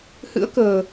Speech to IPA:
h ɨ̰˧˥ ə̯ k ə̤ː˨˩

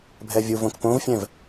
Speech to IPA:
bʱ ɛ vʲ u v õ k p õ v fʲ ɛ̃ v

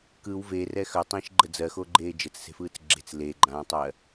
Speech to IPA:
k ɯ w v e r ɛ x œ tˤ ĩː ʃ ɡ͡ǃ ə d͡z ɜ x o ɡ͡ǃ eː d͡ʒ ə t͡s s e̤ f ɯː t͡s ɡ͡ǁ e̤ t͡s l e ɡ͡ǃ ãː tˤ ɜ

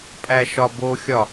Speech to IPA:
pʼ æ ʃ ɒ b o xʲ ɒ

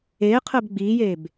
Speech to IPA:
eː qʰ əː b ɡ͡b iː j eː b

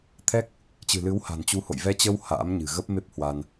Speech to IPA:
t̪ʰ ɛ˦˥ k̚ | t͡ɕ ɨ̤˨˩ l ɨ˨˦ w h a̤˨˩ n t͡ɕ u˨˦ h o̰˧˨ j v ɛ˧ t͡ɕ ə˧ w h a̰ː˧˥ m ɲ ɨ̤˨˩ ɣ ə˦˥ p̚ m e˦˥ p̚ h w a˧ n

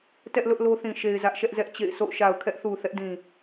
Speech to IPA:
t ɛ˦ ʔ l ʊ˦ ʔ l o˦ θ ĩ˨ ʃ e˨ ɪ̯ z ä˦ ʔ ʃ ɛ˦ ʔ z ɛ˦ ʔ t͡ɕ ḛ˦˨ ɪ̯ sʰ o̰˦˨ ʊ̯ ʃ a˨ ʊ̯ kʰ ɛ˦ ʔ θ u˨ θ ɛ˦ ʔ d ĩ˨

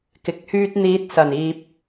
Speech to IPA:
k ɪ˨ k̚ h yː˧ t̚ n̪ iː˨˥ t̚ s ɐ˨˩ n iː˨ p̚

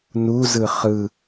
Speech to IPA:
n u z ɯ χ ɯ

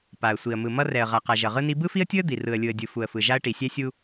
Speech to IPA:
p a˨ ə̯ sʷ i˨ ə̯ m ɯ˨ m ʌ˦ r ɛ˨ ə̯ ʁ a˨ q a˨ ʒ ʌ˨ ʁ ɯ˦ n i˦ b ɯ˦ f i˦ ə̯ tʲ ɯ˦ ə̯ d̪ i˨ r ɯ˨ ə̯ lʲ ɯ˨ ə̯ dʲ ɯ˨ f u˨ ə̯ f ɯ˨ ʒ a˦ ə̯ ʈ i˨ sʲ ɛ˦ sʲ u˦

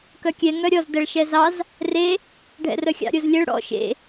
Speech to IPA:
k œ kʲ ɛ ŋ œ ɾʲ ɔ z d ɛ ɭ ʃ ɛ z ɑ z | r e | ɖʱ ɛ̰ r œ xʲ ɑ̰ ɾʲ o z lʲ ɛ ɭ ɽ ɔ̰ ʃ ḛ

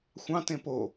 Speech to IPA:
xʷ ɑ̃ t ẽ p o

